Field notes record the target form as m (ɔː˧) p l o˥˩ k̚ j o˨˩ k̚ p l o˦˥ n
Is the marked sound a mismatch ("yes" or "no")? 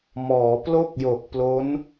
yes